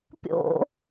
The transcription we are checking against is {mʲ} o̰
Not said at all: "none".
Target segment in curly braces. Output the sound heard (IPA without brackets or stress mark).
pʲ